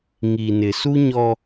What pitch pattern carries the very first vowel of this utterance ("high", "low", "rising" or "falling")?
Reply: low